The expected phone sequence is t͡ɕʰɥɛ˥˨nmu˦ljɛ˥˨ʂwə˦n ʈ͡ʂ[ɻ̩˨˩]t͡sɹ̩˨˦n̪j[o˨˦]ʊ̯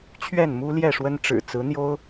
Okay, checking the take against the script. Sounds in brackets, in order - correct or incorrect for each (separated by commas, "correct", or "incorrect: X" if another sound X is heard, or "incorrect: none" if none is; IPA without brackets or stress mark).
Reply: correct, incorrect: o˦